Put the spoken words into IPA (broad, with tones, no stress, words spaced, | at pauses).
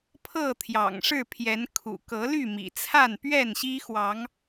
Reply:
pʰɤ˥˨ t̪ʰjɑ̰˨˩ŋʂɻ̩˥˨pʰjɛ˨˦n kʰṵ˨˩kɤ˨˦ly˥˨mḭ˨˩ t͡sʰa˥˨npɥɛ˥˨n ɕi˦xwɑ˨˦ŋ